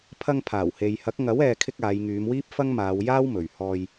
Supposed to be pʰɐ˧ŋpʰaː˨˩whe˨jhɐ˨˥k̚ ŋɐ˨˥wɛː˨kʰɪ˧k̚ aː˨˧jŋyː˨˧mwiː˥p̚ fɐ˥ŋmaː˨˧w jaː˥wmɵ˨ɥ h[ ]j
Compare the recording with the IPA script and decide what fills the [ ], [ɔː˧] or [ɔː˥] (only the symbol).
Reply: ɔː˧